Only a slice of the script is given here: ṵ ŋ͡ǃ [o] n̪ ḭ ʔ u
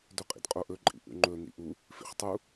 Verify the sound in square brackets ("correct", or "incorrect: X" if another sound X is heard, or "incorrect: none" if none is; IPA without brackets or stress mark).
incorrect: ɵ